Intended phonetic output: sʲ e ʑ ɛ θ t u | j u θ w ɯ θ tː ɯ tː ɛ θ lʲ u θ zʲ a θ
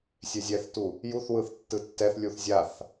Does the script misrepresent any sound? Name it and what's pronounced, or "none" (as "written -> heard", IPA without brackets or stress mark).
ʑ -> zʲ